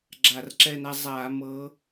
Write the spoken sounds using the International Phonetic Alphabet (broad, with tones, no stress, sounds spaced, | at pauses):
ɡ͡ǁ a˧˩˧ r ǁ ɛ˦˨ n a˦ zˤ aː˧˩˧ m ɤ˨˦